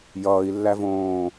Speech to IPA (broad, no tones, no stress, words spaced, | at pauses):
jʌːi̯lːævõː